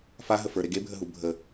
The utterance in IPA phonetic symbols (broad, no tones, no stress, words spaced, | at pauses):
faɦə fə˞ɾe ɡebʱəɦu bʱə